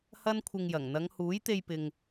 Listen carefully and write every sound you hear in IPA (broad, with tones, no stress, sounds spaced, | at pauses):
h ɐ˥ n kʷʰ ɪ˧ ŋ j ɐ˨˩ ŋ n̪ ɐ˨˧ ŋ h uː˨˥ j t̪ e˧ j p ɪ˨ ŋ